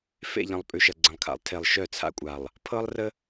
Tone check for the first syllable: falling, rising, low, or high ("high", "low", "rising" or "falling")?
falling